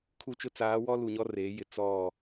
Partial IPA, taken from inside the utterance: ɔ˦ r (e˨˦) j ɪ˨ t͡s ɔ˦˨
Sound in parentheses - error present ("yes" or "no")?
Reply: no